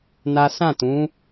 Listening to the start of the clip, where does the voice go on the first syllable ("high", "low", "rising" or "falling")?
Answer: high